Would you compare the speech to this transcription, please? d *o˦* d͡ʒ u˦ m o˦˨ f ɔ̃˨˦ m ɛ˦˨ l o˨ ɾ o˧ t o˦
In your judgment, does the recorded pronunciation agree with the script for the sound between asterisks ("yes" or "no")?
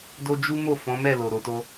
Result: yes